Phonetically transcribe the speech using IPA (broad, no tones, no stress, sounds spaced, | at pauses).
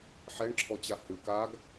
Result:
ħ ɛ ɳ ǁʰ ɔ t͡ɕ a h ɨ k a ɡ